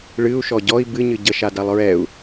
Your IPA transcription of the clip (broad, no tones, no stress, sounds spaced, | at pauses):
ɭ ɨ u̯ ʃ ɔ ɟ ɔ i̯ b ɨ ɲ ɨ ɟ ə ʃ a d a lˠ ɹ ɛ u̯